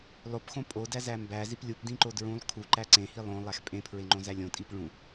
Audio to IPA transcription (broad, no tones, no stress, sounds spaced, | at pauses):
lˠ o p x õ pʼ o d æ z æ m b æ z i p lʲ u p d ĩ ǃ o d ɹ ũ lˠ kʰ u ǃ æ ǀ ẽ h i lˠ õ lˠ æ x pʼ ẽ pʰ ɹ e ŋ͡ǃ õ z æ lʲ õ tʼ i p ɭ ũ